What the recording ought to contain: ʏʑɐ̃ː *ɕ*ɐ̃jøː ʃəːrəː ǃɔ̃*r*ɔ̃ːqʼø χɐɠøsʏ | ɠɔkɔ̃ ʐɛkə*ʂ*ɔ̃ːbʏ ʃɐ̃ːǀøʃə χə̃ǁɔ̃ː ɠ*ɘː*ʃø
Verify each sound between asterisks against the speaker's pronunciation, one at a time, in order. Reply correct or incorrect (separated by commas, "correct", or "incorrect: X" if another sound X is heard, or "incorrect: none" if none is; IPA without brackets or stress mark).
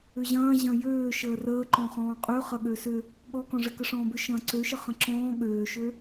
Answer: incorrect: ʑ, incorrect: χ, correct, incorrect: øː